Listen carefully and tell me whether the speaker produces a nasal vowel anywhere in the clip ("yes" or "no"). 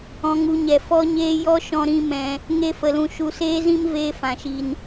yes